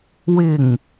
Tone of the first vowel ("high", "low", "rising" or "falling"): low